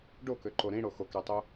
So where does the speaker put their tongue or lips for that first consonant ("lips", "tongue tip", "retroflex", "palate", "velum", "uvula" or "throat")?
retroflex